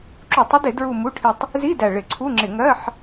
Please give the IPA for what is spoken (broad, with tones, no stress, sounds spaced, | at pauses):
ǁ u˧˩˧ tˤ ə˥ d ɪ˧˩˧ d ɹ u˦˨ m u˧˥˧ ʈʰ ɪ˦˨ tˤ | z i˧˥˧ d æ˨˩ ɭ ɪ˧˩˧ ǀʰ u˧˥˧ ŋ͡ǁ ɪ˧˩˧ ŋ ɜ˧˥˧ ħ